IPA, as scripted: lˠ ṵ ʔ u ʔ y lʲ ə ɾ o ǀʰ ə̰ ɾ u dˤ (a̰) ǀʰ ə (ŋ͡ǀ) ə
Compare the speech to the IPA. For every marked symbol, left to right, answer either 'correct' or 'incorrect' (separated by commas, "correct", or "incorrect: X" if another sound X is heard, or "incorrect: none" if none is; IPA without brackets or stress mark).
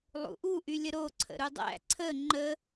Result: incorrect: æ̰, incorrect: ŋ͡ǃ